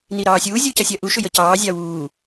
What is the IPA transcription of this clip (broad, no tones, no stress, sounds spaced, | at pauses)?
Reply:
n i ɾ ɑː sʲ uː zʲ u c ɐ sʲ ɐ ʔ u ʃ ʏ j ə c ɑː zʲ ɑ w uː